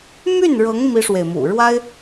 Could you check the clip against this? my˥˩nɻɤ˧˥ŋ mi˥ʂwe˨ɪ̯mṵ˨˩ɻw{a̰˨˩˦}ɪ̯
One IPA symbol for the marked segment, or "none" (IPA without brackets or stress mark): a˥